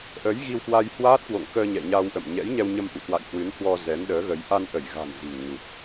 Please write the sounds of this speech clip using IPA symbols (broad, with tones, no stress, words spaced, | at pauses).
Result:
ʔə˨˦j ɣi˧wkwa˧jhwaː˦˥t̚kwo̰˧˨ŋ kəː˧ ɲɛ̰˧˨ɲa˧wʔə̰˧˨m ɲɛ̰˧˥jɲɛ˧wɲə˧m ʔṵ˧˨kwa̰˧˨j hwɨ˨˦nhwɔ˧ zɛ˨˦nɗəː˨˦ɣə˨˦j ʔa˧nʔə˧˩jɣa̤˨˩n zi̤˨˩ŋ ɲu˨˩t̚